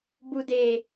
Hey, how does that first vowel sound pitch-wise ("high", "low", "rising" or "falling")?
low